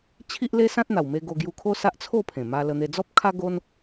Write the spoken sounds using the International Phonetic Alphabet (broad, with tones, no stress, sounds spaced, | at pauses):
t͡ɕʰ i˦ ʔ l e˦ s ã˦ t̚ n̪ a˨˩ w m e˧ ɡ o˧ ɡ j u˧ kʰ o˦ s a˦ ʔ t͡sʰ o˥˧ pʰ ẽ˨˩ m a˧ l ə˧ n̪ e˧ d͡z ɔ˦ p̚ kʰ a˦ ɡ o˦ n